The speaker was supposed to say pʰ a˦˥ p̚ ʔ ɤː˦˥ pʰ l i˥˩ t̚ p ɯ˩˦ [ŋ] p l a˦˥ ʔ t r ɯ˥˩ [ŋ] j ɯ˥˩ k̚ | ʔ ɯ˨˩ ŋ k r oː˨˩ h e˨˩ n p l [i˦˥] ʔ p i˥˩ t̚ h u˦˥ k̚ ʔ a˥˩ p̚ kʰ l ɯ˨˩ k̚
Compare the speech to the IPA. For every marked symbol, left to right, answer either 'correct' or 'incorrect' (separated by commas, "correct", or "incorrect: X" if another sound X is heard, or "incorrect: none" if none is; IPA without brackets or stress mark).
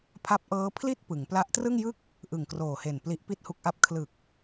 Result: correct, correct, correct